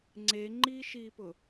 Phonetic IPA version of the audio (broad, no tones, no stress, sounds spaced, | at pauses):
ŋ͡ǀ e ŋ͡ǃ iː ʃ iː p ʊ